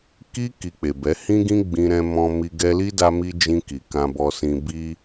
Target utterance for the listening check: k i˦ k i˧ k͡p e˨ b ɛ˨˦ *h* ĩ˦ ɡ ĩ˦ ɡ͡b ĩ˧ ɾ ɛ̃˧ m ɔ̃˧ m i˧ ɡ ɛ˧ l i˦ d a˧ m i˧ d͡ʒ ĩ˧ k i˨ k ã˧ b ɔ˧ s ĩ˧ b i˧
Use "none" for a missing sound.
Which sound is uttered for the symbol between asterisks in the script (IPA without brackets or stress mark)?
h